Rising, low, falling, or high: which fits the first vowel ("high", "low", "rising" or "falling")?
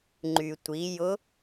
low